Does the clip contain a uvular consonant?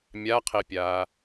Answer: yes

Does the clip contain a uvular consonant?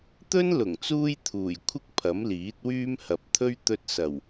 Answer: no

